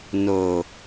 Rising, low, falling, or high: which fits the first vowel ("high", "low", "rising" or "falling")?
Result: low